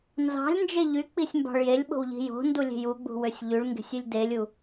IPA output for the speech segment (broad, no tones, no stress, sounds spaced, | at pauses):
n z ɑ̤ lʲ n d͡ʒ e ʎ y k͡p i sʲ m b ɑ̤ ɭ j e lʲ ɓ o̤ w ʎ i̤ j o̤ n d u lʲ e̤ j u ɡ͡b ṳ w ø sʲ ʎ y ɭ ŋ ɡ e̤ sʲ y lʲ d e lʲ u